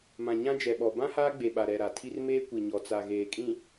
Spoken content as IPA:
m ã˨ ɲ ã˦ d͡ʒ ɛ˨ ɓ ɔ˨ b ã˦ h aː˦ ɡ͡b e˨ ɓ a˨ ɾ ɛ˨ ɾ a˨ tʰ i˦ r m eː˦ kʷ i˨ ɲ ɔ˨ t͡s a˨ ɣ eː˨ kʼ ĩ˨

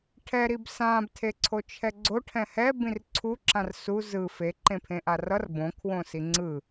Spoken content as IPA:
ʈʰ ɛ ɾ i b s ã b tʰ e ǀʰ o t͡ʃʰ ɛ ɡ͡ǀ o ʈʰ ɛ̃ h ɛ b ĩ r ǀʰ u ǁ ã r s u z ɯ f e ǃ ẽ pʰ ẽ ʔ a r ʌ r b õ kʰ w õ s i ŋ͡ǀ ɯ

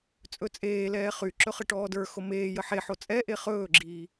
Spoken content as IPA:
t͡sʼ ɵ t͡sʼ eː l ɛː χ y ǁ ɵ χ ɘ ʈ ɔː d ə˞ x o m eː j ə ħ e ħ o t͡sʼ ɛ ʔ e χ ɵː ɡ͡ǁ iː

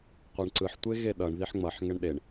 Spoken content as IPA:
qʷ e ɳ ǀ ɯ ħ tʷ e ɣ e ɗ ʌ ɳ ð i ħ ŋ͡m ʌ ħ ŋ ɛ ɳ ɗ e ɳ

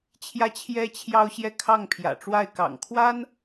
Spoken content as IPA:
t͡ɕʰ j ä˥ t͡ɕʰ j ɛ˥ t͡ɕʰ j ɑ˥ ʊ̯ ɕ j ɛ˥˧ kʰ ɑ˥˩ ŋ pʰ j ä̰˨˩ ʈ͡ʂ w a˥˩ ɪ̯ k ɑ̰˨˩ ŋ kʰ w a˥ n

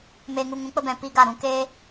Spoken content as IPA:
m eː˧ ŋ u˧ ŋ ũ˨˦ k͡p ə˦ b ɛ̃˧ p i˦ ɡ a˦˨ ɾ ũ˧ k eː˦

